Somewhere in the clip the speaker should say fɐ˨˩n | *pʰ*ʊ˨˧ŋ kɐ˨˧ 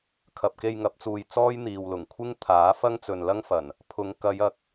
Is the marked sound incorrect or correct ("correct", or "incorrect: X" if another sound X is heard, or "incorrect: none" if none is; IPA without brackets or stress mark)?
correct